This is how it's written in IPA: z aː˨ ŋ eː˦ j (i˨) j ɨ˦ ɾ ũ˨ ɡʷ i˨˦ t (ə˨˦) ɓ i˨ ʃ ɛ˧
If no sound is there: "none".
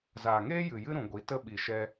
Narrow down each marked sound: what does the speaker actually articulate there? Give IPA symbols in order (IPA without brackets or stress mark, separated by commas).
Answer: ɨ˨, ə˦